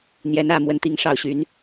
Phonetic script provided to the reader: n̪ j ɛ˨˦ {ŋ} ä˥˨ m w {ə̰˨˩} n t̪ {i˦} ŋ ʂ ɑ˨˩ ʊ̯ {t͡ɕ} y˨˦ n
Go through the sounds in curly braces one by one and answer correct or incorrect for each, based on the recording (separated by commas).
incorrect, incorrect, incorrect, incorrect